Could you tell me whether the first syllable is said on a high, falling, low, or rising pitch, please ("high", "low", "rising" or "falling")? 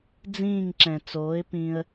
falling